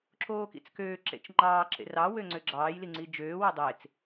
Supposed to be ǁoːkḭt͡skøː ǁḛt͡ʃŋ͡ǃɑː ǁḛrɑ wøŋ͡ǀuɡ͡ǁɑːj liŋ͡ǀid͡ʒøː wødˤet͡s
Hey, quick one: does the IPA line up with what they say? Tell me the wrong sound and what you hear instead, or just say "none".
u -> ø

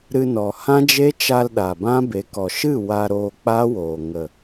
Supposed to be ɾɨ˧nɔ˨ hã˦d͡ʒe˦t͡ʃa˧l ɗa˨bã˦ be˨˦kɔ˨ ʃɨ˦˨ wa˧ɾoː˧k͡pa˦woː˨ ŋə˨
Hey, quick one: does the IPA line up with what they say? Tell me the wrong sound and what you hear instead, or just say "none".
none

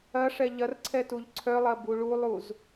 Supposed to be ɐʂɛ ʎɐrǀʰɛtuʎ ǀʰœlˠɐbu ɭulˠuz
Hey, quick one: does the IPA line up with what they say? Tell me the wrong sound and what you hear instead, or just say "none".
none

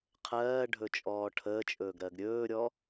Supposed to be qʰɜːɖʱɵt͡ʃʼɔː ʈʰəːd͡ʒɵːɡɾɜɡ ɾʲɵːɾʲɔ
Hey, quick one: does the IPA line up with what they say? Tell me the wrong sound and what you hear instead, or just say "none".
d͡ʒ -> t͡ʃʼ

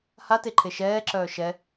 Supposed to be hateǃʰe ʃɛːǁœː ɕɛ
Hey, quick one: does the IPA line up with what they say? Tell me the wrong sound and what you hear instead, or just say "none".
ɕ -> ʃ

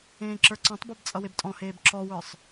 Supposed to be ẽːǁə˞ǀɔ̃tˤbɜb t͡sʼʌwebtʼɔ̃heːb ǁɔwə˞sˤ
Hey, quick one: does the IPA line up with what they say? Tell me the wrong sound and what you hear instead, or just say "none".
none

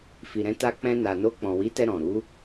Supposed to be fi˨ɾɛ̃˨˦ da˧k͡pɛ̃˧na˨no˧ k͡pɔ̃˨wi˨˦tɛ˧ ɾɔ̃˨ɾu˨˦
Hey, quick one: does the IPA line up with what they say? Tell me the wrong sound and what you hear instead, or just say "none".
d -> t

